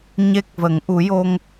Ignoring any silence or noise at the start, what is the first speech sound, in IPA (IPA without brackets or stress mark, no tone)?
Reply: ɲ